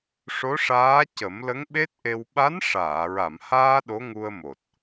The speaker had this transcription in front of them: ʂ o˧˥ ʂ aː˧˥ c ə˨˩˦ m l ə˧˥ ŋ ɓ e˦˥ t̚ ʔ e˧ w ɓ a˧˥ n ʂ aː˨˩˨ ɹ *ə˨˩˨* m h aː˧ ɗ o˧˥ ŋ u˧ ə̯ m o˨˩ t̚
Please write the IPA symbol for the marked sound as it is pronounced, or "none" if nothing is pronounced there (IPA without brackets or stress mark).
a˨˩˨